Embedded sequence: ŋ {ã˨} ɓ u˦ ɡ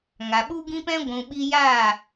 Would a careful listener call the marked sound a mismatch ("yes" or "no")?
yes